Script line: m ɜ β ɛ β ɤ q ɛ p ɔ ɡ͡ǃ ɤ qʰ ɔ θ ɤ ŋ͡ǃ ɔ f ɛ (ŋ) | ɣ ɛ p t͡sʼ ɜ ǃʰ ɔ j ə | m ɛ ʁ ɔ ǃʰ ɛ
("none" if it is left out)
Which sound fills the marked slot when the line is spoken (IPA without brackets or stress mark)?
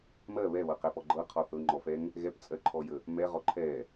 ŋ